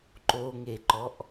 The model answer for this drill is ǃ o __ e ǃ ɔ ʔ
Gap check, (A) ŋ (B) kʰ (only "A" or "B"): A